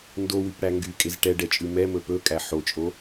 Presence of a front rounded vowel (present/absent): present